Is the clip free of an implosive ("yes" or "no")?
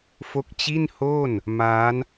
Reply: yes